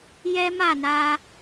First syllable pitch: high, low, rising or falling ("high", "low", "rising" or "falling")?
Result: high